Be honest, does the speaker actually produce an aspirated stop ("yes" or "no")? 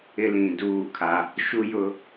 yes